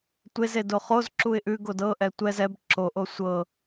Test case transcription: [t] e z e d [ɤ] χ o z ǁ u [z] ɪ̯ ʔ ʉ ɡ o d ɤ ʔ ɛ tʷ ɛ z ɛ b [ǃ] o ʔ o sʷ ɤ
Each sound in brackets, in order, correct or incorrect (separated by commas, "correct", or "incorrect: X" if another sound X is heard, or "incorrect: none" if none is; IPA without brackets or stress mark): incorrect: tʷ, incorrect: o, incorrect: none, incorrect: ǁ